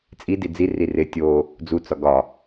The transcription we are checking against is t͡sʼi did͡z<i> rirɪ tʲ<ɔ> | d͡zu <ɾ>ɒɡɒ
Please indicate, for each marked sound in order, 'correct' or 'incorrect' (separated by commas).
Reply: correct, incorrect, incorrect